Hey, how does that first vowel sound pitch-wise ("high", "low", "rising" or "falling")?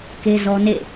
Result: high